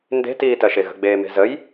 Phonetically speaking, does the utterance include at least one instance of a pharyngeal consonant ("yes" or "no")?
no